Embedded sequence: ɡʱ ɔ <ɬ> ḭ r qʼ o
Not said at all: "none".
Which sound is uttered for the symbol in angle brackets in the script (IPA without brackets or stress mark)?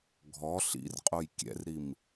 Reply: ɬ